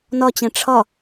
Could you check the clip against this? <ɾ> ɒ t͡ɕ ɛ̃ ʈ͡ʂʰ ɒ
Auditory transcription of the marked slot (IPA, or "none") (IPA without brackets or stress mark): n